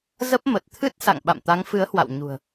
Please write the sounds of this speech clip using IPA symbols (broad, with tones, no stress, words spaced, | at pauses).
zə˦˥p̚mə˨˩t̚t̪ʰɨ˦˥t̚ sa̰˧˨ŋ ɓa̰˧˨mt̪a˨˦ŋfɨ˨˦ə̯hwa̰˧˨w ɲṳ˨˩ə̯